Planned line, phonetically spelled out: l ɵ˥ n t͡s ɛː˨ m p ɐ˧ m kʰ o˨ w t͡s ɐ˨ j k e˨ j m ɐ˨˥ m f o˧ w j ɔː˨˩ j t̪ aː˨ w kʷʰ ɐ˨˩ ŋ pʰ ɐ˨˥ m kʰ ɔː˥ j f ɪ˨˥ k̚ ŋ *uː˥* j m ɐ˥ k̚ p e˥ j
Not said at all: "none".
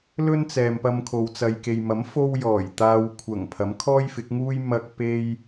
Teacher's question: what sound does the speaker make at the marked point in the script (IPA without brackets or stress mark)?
uː˥